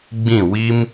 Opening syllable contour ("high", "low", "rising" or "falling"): falling